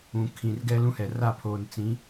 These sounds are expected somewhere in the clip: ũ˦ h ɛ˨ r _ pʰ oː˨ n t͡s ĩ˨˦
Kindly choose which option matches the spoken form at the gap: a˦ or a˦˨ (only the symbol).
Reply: a˦˨